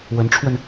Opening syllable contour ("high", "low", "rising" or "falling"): rising